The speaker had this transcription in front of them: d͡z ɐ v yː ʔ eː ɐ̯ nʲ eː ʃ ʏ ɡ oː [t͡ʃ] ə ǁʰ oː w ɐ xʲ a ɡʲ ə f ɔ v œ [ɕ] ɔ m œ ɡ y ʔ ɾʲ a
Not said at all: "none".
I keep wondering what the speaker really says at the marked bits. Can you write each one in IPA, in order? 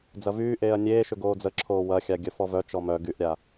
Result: d͡z, t͡ʃ

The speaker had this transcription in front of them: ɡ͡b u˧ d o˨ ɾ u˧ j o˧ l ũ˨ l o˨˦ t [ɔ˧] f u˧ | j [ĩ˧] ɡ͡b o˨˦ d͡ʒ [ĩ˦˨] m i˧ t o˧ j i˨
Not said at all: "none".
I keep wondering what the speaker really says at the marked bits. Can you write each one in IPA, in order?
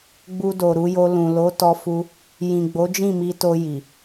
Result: ɔ˧, ĩ˨, ĩ˦˨

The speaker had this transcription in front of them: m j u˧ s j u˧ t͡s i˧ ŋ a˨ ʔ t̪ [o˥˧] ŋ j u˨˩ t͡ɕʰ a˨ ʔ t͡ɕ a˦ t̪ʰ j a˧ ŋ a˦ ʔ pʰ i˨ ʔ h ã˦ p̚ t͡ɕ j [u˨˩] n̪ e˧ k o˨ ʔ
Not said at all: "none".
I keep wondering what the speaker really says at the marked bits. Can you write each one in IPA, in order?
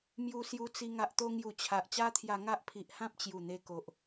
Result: o˧, u˨˩

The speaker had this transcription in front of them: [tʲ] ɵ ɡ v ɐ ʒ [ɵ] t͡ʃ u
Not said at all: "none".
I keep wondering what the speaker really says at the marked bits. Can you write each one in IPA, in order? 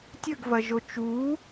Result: tʲ, o

